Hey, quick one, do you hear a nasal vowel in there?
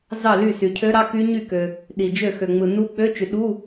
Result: no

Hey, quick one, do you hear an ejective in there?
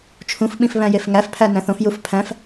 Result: no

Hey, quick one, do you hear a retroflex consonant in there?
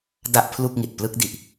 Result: no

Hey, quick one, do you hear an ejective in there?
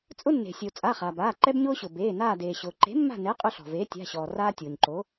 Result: yes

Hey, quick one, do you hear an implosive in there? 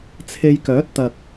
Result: no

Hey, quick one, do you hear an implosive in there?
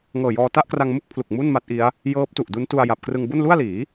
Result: no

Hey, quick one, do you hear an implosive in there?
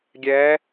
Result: no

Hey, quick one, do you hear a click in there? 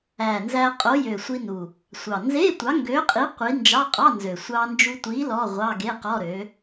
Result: no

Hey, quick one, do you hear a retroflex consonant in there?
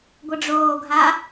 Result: yes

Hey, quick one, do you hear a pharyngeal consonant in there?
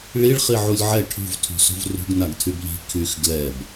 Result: yes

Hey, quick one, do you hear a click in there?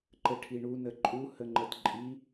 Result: yes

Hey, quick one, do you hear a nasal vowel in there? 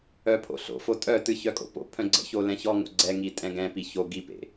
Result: yes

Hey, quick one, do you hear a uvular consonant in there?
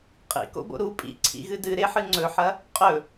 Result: yes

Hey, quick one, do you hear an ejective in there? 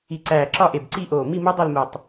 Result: no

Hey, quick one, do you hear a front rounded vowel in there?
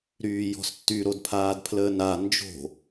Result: yes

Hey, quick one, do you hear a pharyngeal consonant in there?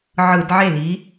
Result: yes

